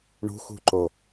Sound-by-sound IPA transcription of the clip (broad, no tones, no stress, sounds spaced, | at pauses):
ɳ ṳ x ṳ ǃ o